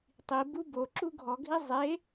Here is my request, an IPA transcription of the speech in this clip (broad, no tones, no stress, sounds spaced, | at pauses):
tˤ i b u b o ǁ u ɡʱ ɔ ɡʱ i zˤ e